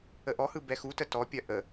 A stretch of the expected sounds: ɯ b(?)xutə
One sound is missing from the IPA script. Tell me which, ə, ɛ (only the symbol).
ɛ